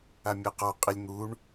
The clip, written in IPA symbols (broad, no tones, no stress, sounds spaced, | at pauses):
a mʲ ɐ q ɔ qʼ i lʲ n̪ u ɳ